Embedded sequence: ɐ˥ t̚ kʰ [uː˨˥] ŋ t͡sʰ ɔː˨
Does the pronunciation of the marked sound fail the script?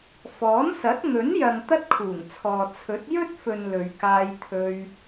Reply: yes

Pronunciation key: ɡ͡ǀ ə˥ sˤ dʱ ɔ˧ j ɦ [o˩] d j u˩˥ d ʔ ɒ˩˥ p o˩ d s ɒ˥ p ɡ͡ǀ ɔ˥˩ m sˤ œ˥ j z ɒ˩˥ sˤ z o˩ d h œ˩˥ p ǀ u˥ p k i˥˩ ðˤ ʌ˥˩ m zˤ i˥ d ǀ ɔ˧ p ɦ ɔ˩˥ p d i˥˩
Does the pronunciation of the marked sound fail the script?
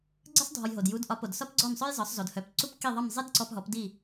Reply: no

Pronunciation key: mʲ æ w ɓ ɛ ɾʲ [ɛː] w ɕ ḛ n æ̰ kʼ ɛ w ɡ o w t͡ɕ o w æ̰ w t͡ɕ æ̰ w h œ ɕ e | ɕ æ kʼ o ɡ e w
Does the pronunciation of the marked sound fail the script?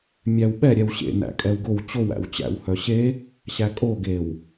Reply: yes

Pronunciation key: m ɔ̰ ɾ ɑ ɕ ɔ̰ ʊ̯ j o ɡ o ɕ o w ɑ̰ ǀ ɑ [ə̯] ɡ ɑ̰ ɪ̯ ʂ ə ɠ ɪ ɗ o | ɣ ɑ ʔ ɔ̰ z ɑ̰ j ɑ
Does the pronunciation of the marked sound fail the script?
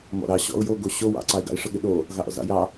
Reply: yes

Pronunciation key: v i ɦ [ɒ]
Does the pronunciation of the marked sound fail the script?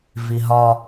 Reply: no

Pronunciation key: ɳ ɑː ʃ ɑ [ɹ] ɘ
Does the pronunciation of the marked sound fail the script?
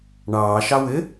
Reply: yes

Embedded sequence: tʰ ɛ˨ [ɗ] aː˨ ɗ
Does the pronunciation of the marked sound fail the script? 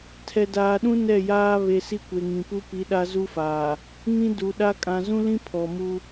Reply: yes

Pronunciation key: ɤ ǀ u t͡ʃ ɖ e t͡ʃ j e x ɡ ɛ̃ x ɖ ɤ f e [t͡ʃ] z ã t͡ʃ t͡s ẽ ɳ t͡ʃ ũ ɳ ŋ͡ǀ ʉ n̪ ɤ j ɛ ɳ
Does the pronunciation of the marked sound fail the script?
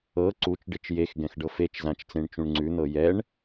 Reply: no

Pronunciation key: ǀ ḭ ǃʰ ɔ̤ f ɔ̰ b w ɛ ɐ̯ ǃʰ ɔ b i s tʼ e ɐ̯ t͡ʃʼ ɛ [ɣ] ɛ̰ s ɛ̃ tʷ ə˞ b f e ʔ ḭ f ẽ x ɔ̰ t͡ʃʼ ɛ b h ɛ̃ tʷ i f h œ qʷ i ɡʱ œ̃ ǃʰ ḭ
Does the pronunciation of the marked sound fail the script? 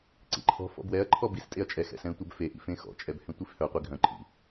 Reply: yes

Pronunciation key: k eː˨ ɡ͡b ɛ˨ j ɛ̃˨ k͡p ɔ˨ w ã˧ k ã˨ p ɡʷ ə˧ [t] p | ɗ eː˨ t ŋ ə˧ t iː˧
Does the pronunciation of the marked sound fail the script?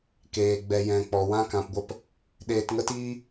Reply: yes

